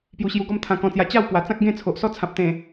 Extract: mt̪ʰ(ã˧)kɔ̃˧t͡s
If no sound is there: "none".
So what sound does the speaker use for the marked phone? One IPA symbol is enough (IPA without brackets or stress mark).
ã˧